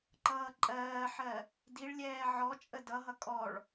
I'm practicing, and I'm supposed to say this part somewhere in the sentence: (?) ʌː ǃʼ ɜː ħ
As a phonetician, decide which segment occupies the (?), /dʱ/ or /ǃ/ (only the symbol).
ǃ